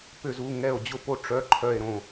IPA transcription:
pʏ˧˩zu˩˧˩ŋɛ˧˩o̯ d͡ʑʊ˧˩po˧˩ ʈ͡ʂœ˩˧˩ ǃʰœ˧˩e̯ɾõ˧˩

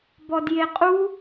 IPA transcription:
bɔdjeqʼu

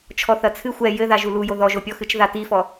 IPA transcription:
t͡ʃʰɔθɐt͡sʰɨ xʷɛ jɘða ʒulujo ðɔʒopʲɔxɨt͡ʃ ðatifɔ

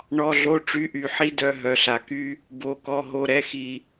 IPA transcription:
ɳɔ˩˧˩ɮo˩˧˩ʈ͡ʂy˩˧˩ʔy˩ ħi˧dœ˩˧˩ ɦœ˩ɬa˩ ky˧ | bo˩kɔ˩˧˩ɦo˩˧˩ ɾɛ˩˧˩xi˩

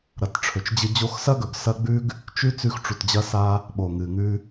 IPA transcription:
ɾɐ˨tʈ͡ʂʰɵ˨t͡ʃd͡ʑɨ˧ d͡ʑo˧xsɐ˦ɡɵ˨ɡ sɐ˦ ɡ͡bʉ˦ɡ | t͡ʃʉ˦ t͡sʉ˧xʈ͡ʂu˨td͡ʑɐ˧sa˧ | ɓo˨ŋɨ˨ŋʉ˧

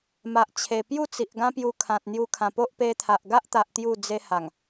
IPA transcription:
ma˨ʔt͡ɕʰe˨˩pju˥˧t͡si˨ʔ ɡã˦pju˧kʰã˨t̚ n̪ju˧kʰã˨˩po˦ʔ pe˧t̪ʰa˨ʔɡa˦ʔt̪a˨ʔ t̪ju˥˧d͡ze˦ha˨˩ŋ

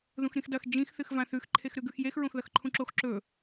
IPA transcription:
ðũxɾĩxdɐx d͡ʒĩx θɨxvãθʉx ǃʰexɾʉɡʉxjex ɹõxðɐxǃʰũǁox ǁɵ

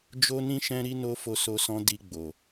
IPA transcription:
d͡ʒo˦nĩ˦ ʃɛ̃˦ɾi˦ no˦ fo˧so˧sɔ̃˧ di˧ ɡ͡bo˨

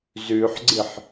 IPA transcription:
zʉħɡ͡ǀɨħ

